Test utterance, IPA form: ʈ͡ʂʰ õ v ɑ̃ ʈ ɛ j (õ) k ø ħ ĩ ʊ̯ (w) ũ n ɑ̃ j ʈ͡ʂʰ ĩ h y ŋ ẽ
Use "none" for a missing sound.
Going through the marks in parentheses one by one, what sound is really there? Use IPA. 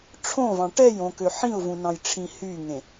õ, v

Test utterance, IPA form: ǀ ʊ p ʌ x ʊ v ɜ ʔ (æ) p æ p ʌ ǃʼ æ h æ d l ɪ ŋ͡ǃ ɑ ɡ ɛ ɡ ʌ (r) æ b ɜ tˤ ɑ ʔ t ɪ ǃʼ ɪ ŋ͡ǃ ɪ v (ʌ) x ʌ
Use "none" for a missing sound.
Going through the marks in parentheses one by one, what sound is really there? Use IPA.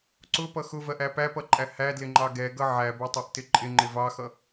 æ, ʕ, ɑ

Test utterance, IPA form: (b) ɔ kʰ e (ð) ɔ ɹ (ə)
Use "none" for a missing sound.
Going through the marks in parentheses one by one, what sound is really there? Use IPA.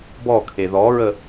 b, ð, ə

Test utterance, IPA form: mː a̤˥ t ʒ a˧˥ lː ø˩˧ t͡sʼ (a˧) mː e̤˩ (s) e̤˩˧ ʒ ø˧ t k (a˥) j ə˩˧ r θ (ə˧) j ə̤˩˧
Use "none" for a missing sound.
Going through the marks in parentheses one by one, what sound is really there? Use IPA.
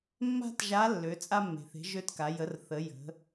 a˧, θ, a˩˧, ə˩˧

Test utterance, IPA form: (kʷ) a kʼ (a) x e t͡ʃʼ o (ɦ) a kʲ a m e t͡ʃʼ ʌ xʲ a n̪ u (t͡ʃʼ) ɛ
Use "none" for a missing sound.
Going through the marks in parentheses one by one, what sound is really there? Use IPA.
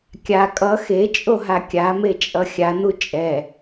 kʲ, ʌ, ɦ, t͡ʃʼ

